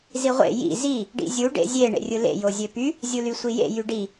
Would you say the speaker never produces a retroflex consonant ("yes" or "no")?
no